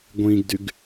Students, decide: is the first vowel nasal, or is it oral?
nasal